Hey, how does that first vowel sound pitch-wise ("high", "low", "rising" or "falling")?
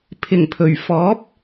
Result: low